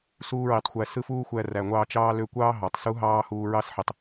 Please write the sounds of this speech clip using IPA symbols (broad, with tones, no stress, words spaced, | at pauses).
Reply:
suː˦ ɹi˨˦tˤ xʷæ˧ sɯ˦ fuː˦xʷæ˧ræ˨ŋʷɑː˧ t͡ʃɑː˦ lø˧kʷɑː˦ ɦɑ˨tˤsu˦ ɦɑː˦huː˧ɹɑ˦sħi˨tˤ